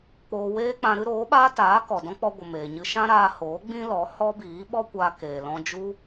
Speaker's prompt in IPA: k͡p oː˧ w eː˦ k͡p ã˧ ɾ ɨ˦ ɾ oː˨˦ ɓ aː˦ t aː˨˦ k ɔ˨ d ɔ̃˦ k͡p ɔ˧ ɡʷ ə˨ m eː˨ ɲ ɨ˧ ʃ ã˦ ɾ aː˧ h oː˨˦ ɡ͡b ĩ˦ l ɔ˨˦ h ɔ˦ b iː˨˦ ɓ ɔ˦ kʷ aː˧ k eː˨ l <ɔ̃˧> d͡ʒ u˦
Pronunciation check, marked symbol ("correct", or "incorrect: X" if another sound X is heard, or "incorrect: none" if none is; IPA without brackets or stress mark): correct